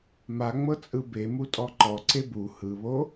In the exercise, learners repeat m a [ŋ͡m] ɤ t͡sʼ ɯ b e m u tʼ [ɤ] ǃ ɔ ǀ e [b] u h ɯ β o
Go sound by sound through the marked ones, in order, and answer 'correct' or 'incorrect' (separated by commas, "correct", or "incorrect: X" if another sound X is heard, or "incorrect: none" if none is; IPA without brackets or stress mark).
correct, incorrect: ɔ, correct